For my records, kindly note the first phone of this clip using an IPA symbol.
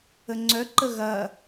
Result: ə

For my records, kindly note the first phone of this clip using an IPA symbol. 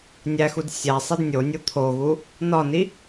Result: nʲ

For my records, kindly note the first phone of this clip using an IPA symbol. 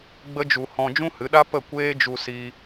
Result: ɡ͡b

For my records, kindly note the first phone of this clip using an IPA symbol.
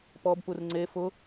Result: p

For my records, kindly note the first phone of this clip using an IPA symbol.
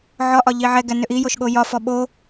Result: ʕ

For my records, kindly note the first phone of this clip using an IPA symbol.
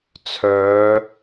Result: t͡sʰ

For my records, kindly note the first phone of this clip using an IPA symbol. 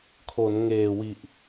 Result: kʰ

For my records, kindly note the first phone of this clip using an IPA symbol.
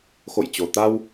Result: x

